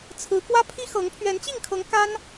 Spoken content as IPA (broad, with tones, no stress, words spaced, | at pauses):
t͡sʰɹ̩˧˥ kwä˥pʰi˥xɤ˧˥ŋ pʰɥɛ˧˥nt͡ɕi˥˩ŋkʰɤ˧˥ŋ ka˥n